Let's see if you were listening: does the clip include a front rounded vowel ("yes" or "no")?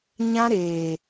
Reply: no